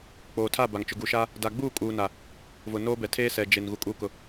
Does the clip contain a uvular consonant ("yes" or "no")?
no